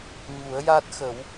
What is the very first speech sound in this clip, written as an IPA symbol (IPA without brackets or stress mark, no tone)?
ɲ